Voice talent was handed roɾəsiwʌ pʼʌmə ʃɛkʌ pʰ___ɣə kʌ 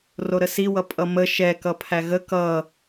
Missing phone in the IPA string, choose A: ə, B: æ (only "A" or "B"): B